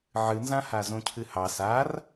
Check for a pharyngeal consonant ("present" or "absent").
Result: present